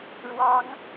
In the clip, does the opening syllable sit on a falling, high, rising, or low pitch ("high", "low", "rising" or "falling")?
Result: high